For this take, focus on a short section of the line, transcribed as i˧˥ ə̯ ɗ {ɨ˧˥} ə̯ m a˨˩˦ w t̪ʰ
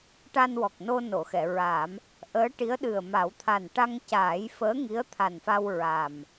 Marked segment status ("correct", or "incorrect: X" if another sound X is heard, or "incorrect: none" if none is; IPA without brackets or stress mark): incorrect: ɨ˨˩